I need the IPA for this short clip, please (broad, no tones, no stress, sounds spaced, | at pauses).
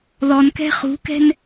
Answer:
ð ɔ n k ɛ̤ χ ṳ k ɛ̤ n